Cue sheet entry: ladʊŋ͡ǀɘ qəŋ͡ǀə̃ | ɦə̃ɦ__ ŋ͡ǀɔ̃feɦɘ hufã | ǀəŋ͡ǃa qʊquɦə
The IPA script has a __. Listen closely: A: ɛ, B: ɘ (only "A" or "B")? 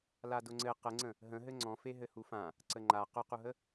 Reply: B